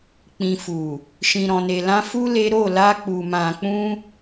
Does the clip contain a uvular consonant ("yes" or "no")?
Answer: no